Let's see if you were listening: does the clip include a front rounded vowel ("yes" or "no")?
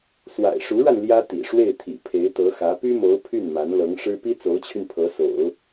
yes